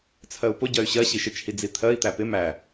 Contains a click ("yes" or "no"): no